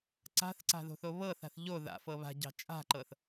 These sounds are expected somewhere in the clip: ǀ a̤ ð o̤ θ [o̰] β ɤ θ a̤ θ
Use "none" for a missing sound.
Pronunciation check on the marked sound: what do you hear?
o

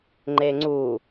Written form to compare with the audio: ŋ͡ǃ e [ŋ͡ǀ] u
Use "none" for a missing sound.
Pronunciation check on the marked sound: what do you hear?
ŋ͡ǀ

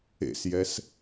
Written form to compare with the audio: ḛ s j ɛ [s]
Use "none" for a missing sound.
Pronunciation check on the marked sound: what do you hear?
s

